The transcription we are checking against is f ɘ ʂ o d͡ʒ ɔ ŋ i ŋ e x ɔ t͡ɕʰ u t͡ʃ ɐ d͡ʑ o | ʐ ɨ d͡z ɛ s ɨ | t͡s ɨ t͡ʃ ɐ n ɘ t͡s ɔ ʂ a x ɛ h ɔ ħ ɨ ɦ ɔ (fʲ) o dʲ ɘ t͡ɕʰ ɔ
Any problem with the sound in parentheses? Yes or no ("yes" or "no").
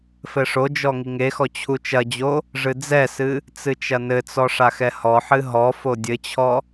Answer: yes